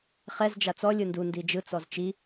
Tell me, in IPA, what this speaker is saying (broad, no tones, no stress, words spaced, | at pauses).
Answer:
χɛz d͡ʒat͡sɔ lʲɯndu ndid͡ʒɯ t͡sɔzt͡ʃi